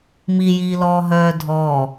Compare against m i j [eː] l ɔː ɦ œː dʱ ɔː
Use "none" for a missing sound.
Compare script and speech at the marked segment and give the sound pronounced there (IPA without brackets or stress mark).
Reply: iː